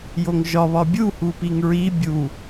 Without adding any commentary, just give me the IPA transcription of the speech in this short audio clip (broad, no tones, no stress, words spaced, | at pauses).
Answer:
joŋʒɒ βɒbʲu hupiŋɹi bʲu